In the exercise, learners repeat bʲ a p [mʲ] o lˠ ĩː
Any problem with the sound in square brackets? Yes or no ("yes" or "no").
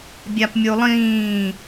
no